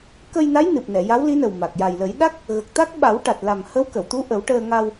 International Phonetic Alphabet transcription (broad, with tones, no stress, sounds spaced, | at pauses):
k ə˧ j n a˧˥ j n ɨ˨˩ p̚ n ɛ˨˩˨ j a˧˥ w l i˧˥ n ə˨˩ w m a˨˩ k̚ j a˨˩ j l ə˨˩˦ j ɗ a˦˥ k̚ | ɣ ə˨˩ k̚ t̪ a˦˥ k̚ ɓ a˨˩˦ w ʈ a˨˩ t̚ l a˨˩ m h ə˧˥ w k ə˨˩˨ w t̪ u˧˥ ʔ ə˨˩˦ w ʈ əː˧ ŋ a˧ w